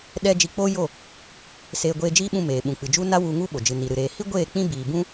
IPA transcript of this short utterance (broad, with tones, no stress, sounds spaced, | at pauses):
ɗ ɛ˦ d͡ʒ i˧ k͡p o˦ j o˦˨ | s eː˧ ɡʷ eː˧ d͡ʒ iː˦ ɓ ũ˧ m eː˨ ɓ ũ˨ k͡p ɨ˨ d͡ʒ u˦ n a˦ w u˧ ŋ u˦ ɓ o˨ d͡ʒ ɨ˨ n i˨ ɾ ɨ˨ ɾ eː˨ h i˦ ɡʷ eː˦˨ k͡p ĩ˦ b iː˨ b ũ˦